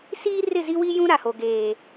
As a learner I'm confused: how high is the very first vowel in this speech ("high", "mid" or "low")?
high